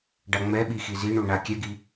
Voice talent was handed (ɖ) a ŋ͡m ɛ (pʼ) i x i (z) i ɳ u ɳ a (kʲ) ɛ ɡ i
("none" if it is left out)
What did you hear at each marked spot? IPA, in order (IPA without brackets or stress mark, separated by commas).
ɖ, ɓ, z, kʲ